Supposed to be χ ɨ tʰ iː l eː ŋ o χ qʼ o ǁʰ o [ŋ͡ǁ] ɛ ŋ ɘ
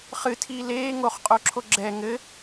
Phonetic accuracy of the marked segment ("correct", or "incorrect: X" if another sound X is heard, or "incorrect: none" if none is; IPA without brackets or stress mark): incorrect: ɡ͡ǁ